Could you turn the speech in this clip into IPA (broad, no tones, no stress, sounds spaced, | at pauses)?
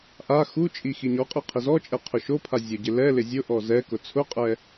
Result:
ʔ a x u t͡ʃʼ i x i ɲ ɔ qʼ i qʰ ɪ z ɔ t͡ʃʼ ɛ qʰ ʊ ʃ o pʰ a zʲ ʊ ɟ ɪ l ɛ l ɪ zʲ ʊ ʔ ɔ z ɛ k ʊ t͡sʰ ʊ qʼ ɛ